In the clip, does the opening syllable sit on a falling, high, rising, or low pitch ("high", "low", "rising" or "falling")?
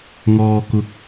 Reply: low